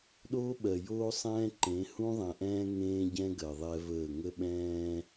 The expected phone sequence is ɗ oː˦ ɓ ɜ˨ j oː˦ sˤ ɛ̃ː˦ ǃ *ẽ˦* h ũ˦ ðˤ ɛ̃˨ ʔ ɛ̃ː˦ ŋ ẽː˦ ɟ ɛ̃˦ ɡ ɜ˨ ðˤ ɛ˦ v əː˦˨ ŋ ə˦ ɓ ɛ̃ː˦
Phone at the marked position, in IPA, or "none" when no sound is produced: ẽ˨˦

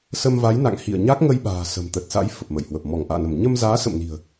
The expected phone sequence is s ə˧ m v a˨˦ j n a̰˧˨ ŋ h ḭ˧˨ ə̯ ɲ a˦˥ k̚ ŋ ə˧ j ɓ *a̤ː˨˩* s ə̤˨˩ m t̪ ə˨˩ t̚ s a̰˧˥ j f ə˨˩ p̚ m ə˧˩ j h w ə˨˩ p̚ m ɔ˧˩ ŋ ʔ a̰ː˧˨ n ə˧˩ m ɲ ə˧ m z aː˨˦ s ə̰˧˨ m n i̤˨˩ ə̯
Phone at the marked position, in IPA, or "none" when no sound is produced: a̤ː˨˩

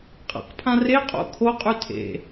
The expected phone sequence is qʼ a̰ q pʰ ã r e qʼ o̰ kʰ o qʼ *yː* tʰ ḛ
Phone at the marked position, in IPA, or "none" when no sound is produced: y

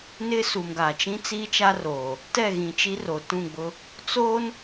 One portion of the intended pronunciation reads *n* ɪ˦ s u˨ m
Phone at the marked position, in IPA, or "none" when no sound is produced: n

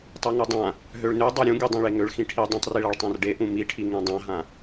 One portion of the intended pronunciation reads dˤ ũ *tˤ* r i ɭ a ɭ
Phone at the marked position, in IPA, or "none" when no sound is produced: tˤ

